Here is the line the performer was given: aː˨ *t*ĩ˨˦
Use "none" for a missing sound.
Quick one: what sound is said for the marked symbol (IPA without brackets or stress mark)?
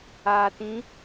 t